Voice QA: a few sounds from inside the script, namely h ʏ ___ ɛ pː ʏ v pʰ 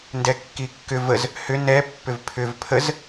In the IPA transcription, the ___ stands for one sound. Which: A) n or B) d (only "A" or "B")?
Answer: A